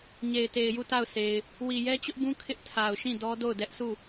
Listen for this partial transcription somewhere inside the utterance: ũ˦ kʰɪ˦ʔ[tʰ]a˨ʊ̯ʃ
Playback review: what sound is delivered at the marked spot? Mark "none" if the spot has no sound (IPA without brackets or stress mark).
tʰ